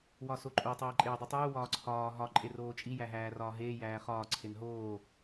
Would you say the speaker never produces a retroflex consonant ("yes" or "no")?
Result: yes